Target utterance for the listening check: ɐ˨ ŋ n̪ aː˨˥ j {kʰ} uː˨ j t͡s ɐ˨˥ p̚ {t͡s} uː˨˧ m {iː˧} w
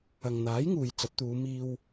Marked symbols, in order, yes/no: no, no, yes

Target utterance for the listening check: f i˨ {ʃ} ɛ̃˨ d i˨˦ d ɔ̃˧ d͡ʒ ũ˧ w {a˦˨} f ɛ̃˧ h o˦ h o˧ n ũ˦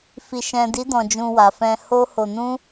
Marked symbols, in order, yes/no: yes, no

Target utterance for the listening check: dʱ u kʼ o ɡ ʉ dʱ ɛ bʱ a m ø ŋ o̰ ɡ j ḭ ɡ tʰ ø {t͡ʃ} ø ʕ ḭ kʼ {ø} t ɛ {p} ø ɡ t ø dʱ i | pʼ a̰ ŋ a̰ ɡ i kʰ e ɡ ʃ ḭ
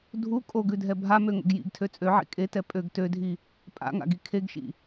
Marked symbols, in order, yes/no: no, no, no

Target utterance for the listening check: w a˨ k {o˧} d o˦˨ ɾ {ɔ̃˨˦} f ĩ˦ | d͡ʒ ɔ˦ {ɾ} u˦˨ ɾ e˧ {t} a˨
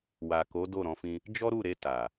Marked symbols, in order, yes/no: no, yes, yes, yes

